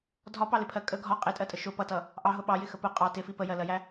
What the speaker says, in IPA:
dʱ ɒ p ɑ l ɪ pʰ ɜ kʼ ə ɡʱ ɒ qʼ ɪ tʼ ɜ tʼ ə ʃ ʊ p ʌ t ʌ | ʔ ɑ ɦ ʊ ɓ ɑ j ɪ x ə p ʊ qʼ ɑ t ɪ f i p ə j ɜ l ɜ j æ

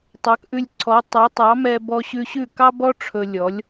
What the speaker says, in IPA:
tˤ ɑ˩˥ k ʔ ʉ˧ lʲ ǀʰ ɔ˩˥ tˤ ɑ˩˥ tˤ ɑ˩˥ m ɛ˧ b ɔ˧ ɕ ʉ˧ ɕ ʉ˥˩ k ɑ˥ b ɔ˥ ʈ͡ʂʰ ɵ˧ lʲ ɔ˩˥ lʲ

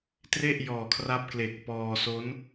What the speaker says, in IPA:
t r e˥˩ ʔ j ɔː˨˩ kʰ r a˦˥ p̚ k l e˨˩ k̚ p ɔː˧ s o˦˥ n

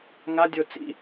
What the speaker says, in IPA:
ŋ a dʲ o t͡s ḭ

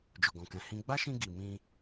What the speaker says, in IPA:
d͡ʒ o˨ ɡ ɔ̃˨ k ɛ̃˨ h ĩ˧ ɡ͡b a˦ ʃ ĩ˧ ɡ i˨ m ĩ˧

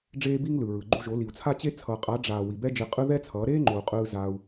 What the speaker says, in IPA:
ɖ͡ʐ eː˧ b i˧ ŋ l ɯ˨ ɹ ɯ˨ ɡ͡ǃ u˧ ʒ o˨˦ l i˨ u̯ t͡sʰ a˦ t͡ɕ e˦ t͡sʰ ʌː˨ qʼ a˨˦ ɖ͡ʐ aː˨ w i˨ b ɛ˦ d͡ʒ e˧ qʼ ɯ˦ ð ɛ˦ t͡sʰ ʌː˨˦ ɾ eː˦ ŋ͡ǃ o˨ u̯ qʼ ɯː˧ z a˧ u̯

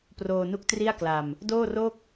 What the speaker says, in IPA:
p r oː˧ n u˦˥ k̚ t r i˥˩ a̯ k l a˧ m | d oː˥˩ r o˥˩ k̚

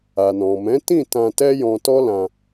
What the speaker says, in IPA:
a˨ n ɔ̃˨ m ɛ̃˨˦ t ĩ˦˨ t ã˧ t ɛ˦ j ɔ̃˧ t ɔ˦ l ã˧

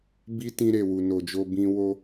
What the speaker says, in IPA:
b i˦ t ĩ˧ ɾ e˨ w u˨ n o˨ d͡ʒ o˧ b ĩ˧ w o˧

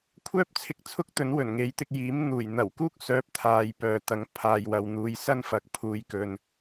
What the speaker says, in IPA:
kʷʰ œː˥ p̚ t͡sʰ ɪ˧ k̚ t͡sʰ ʊ˥ k̚ t̪ ɵ˨˥ n w ɵ˨˩ n ŋ e˨˥ j t̪ ɪ˧ k̚ j iː˨˥ m n̪ uː˨˩ j n̪ ɐ˨˩ w k uː˥ k̚ s œː˨˥ p̚ t̪ʰ aː˨ j p œː˨ t̪ ɐ˨˥ ŋ pʰ aː˨ j w ɐ˨ w n̪ uː˨˧ j s ɐ˥ n f ɐ˨˥ k̚ pʰ uː˨˧ j k ɵ˨ n

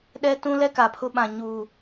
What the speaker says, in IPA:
ɗ ɛ˦ t ũ˦ l ɛ˦ k a˨ pʰ ʊ˦ ɓ ã˨ ɲ uː˨

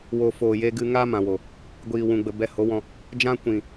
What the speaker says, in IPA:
w o˨ f oː˨ j e˧ ɡ ɨ˧ ŋ aː˦ m ã˨ w o˨ | ɡʷ iː˨ w ũ˨ ɡ͡b ə˨ b ɛ˧ h o˨˦ w ɔ̃˧ | d͡ʒ ã˦ kʷ ĩ˨

